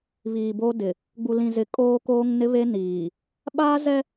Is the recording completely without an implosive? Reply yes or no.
no